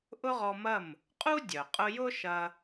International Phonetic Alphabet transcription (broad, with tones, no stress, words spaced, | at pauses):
ʔʊ˥ʁɔ˧mɐ˥˩m | qʼu˥ dʲœ˩qʼʊ˧jʊ˥ʃɐ˧